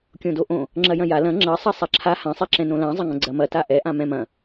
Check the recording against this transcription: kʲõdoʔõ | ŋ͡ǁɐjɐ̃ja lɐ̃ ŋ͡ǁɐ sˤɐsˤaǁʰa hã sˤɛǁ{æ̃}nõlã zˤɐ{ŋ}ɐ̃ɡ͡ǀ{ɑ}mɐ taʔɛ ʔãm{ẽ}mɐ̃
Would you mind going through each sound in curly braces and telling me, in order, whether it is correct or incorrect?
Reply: incorrect: ɛ̃, correct, incorrect: ɐ, incorrect: ɛ̃

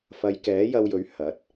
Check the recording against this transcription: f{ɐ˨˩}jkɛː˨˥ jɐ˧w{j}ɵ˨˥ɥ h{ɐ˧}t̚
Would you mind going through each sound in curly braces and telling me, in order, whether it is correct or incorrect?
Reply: incorrect: ɐ˨˧, correct, incorrect: ɐ˨˥

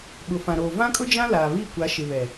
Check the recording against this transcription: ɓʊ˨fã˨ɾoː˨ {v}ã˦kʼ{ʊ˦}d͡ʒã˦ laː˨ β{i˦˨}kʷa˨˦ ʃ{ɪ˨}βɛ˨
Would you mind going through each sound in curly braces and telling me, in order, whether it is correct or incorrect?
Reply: correct, correct, correct, correct

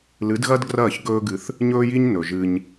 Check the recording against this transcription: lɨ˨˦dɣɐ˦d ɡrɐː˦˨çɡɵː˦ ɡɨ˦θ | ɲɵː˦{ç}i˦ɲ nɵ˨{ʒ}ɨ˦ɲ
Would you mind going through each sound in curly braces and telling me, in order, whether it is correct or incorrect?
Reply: incorrect: j, correct

